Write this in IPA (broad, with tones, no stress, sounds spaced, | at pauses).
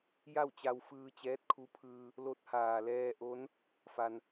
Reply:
j a˥˨ w t͡ɕ a˧ w f ɯː˧ t͡ɕ ɛː˧˥ t̚ kʰ u˧˥ pʰ ɯː˧ | l o˧˥ t̚ h aː˩ l ɛː˧ ʔ o˧˥ n | f a˩ n